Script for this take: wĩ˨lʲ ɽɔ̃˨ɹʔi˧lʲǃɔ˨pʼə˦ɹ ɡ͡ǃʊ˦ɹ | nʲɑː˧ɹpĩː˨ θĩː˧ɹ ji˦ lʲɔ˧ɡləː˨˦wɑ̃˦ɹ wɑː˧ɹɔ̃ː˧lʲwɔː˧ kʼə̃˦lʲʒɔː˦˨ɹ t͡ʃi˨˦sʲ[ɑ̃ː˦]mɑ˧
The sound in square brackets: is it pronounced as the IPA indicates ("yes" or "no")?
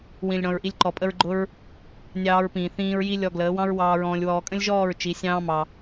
yes